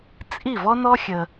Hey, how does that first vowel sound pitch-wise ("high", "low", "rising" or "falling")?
falling